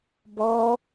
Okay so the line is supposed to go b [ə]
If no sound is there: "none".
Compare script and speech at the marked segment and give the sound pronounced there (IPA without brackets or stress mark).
ɔ